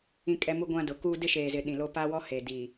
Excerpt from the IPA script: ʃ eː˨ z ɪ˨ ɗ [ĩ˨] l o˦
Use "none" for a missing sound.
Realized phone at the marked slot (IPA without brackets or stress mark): ĩ˨